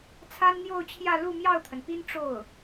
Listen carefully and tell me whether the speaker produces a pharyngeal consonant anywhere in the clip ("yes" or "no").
no